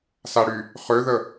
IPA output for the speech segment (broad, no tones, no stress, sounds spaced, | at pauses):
s a ɽ y | χ ø ð ə